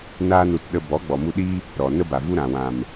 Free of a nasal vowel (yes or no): no